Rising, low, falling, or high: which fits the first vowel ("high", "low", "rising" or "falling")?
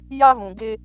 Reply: high